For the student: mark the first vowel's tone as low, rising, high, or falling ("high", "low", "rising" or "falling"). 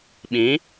rising